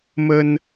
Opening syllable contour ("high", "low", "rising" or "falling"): high